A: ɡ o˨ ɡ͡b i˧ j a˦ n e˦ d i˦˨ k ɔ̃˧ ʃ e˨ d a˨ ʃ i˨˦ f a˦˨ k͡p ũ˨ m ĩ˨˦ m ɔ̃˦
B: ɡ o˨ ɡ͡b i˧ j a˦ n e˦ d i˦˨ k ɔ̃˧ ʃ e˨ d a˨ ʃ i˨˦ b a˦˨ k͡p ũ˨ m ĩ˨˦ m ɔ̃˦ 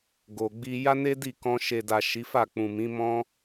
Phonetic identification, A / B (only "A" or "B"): A